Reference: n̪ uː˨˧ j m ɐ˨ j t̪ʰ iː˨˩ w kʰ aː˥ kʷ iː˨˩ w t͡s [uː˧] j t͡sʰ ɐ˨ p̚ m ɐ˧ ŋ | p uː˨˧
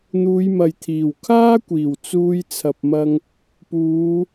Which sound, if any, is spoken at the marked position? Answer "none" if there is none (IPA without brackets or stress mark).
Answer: uː˧